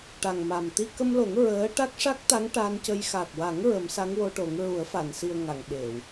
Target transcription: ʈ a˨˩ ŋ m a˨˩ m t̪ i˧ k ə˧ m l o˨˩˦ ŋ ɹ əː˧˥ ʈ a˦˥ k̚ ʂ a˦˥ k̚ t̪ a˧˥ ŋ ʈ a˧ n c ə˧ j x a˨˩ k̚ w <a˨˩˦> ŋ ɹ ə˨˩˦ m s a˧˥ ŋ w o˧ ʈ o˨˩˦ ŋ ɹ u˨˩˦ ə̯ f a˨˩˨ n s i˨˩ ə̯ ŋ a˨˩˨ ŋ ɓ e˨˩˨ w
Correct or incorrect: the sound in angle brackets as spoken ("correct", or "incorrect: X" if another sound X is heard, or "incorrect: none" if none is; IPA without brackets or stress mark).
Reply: correct